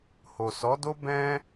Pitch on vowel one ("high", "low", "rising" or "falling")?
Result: low